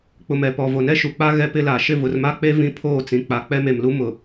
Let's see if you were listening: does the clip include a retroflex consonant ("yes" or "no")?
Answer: no